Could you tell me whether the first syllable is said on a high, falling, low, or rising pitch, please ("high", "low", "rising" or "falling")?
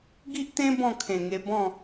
high